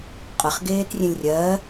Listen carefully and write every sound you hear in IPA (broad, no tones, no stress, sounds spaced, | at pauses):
qʼ ə χ ɡ eː t rʲ ẽ lʲ rʲ ɜː